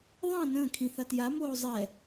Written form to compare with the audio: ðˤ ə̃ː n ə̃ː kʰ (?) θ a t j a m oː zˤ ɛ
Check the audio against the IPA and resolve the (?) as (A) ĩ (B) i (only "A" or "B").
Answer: A